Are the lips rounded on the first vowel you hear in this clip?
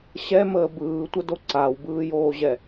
no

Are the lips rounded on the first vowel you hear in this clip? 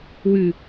yes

